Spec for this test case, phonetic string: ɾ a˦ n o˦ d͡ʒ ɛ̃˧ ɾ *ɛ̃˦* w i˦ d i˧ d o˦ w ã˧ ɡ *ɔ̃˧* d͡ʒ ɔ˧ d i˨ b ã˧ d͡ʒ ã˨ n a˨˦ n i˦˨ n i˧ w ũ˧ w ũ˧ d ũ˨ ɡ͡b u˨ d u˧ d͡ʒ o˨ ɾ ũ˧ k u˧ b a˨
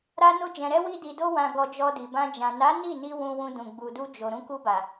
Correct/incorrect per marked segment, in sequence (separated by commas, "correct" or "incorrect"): incorrect, incorrect